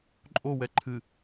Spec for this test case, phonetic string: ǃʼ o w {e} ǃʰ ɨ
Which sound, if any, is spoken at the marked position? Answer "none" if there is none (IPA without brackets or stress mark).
ɛ